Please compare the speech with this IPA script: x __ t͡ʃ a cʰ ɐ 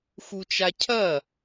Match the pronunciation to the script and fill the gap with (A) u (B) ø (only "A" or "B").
A